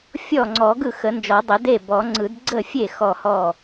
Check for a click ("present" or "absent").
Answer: present